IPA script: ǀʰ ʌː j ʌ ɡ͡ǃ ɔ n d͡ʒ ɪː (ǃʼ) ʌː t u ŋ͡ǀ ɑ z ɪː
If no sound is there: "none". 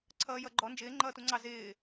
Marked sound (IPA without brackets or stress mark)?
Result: ŋ͡ǃ